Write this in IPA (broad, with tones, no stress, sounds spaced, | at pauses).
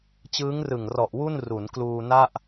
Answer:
t͡ɕ ɯː˦˥ ŋ r ɯ˨˩ ŋ r ɔ˨˩ ʔ w u˥˩ n r u˩˦ n k l uː˧ n a˥˩ ʔ